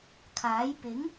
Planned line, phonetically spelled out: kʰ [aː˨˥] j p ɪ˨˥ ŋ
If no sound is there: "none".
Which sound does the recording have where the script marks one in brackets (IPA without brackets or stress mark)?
aː˨˥